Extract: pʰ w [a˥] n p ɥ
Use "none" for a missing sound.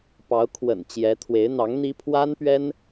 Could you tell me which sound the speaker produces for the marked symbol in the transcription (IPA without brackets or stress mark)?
a˥